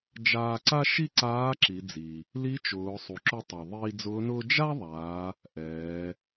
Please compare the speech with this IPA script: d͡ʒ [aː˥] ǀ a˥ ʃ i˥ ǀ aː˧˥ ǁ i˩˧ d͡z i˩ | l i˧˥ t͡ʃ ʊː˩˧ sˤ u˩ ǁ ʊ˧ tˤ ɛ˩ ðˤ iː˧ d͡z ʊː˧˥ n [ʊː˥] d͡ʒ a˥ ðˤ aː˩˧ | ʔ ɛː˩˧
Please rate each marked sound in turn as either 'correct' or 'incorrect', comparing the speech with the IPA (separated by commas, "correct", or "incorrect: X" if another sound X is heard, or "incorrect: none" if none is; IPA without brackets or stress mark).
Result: incorrect: aː˧, correct